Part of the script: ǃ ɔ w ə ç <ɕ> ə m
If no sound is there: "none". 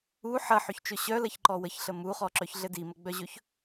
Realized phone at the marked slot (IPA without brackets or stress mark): ɬ